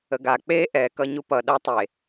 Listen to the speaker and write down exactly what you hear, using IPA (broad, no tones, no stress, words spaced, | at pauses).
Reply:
əɡa k͡pe ʔɛkʌ ɲupʌ ɗʌ tˤe